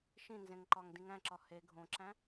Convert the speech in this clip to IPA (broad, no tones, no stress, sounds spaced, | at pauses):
ʃ ĩ n z ẽ ŋ ǃ ɒ ŋ d ĩ ŋ æ̃ ǁ ɒ h e ɡʱ õ ǁ æ̃